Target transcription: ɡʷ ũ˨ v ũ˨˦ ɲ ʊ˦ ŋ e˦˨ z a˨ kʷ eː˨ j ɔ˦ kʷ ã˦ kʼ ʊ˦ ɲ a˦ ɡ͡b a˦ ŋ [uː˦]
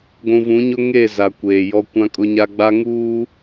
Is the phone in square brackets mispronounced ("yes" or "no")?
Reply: no